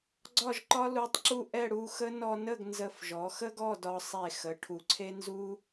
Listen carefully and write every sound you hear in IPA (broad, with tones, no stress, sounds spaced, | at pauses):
ɡ͡ǀ ɒ˥˧ ʒ ǃ ɒ˥ l u˧ tˤ ǁ u˥˧ ʔ ɛ˥˧ ɽ u˥˧ x ə˥ n ɔ˧ n ə˥˧ ɡ n z ə˧˩ f ʒ ɔ˩˧ x ə˥ ɡ ɔ˥˧ d ɒ˧ sˤ e˧˩ x ə˩˧ ʈʰ u˩˧ ǀʰ e˥ n z u˥